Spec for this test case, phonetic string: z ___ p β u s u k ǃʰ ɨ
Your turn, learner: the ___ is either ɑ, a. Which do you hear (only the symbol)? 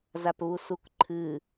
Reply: a